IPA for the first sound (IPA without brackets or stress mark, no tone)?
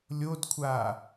lʲ